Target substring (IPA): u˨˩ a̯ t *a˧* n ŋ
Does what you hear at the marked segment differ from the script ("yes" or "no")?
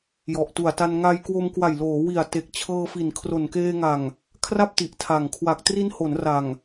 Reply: no